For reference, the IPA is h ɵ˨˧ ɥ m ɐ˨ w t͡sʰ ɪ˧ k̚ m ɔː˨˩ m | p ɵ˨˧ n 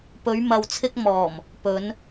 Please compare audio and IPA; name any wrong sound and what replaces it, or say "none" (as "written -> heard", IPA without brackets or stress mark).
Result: h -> p